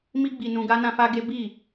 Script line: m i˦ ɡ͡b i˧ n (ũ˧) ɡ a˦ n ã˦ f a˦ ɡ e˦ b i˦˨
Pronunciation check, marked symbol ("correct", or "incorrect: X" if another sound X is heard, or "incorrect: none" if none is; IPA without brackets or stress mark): correct